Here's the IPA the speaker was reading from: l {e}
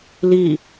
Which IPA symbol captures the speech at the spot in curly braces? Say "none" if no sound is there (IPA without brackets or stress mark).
i